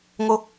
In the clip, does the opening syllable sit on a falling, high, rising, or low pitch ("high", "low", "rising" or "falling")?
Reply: high